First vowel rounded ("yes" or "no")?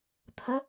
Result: no